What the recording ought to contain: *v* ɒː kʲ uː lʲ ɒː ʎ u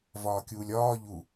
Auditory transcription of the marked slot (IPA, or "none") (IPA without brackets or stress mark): v